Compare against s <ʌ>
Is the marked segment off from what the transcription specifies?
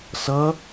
no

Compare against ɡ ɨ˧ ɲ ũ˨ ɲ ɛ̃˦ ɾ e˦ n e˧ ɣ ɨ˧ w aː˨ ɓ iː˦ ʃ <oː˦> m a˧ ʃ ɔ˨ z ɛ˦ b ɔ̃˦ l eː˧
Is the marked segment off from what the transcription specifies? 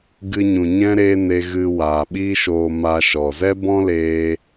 yes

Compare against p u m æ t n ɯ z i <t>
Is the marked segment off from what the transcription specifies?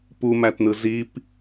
yes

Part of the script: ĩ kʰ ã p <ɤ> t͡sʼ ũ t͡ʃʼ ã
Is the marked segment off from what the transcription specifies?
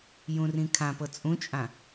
no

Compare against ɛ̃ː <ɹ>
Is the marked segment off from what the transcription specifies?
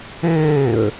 no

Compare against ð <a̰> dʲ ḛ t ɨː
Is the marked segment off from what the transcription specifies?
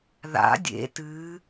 no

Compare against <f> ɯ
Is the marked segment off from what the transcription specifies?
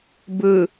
yes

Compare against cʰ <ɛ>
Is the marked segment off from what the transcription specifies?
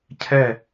no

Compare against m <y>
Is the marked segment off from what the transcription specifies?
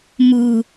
yes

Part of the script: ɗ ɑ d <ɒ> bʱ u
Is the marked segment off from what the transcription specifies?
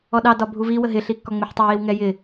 no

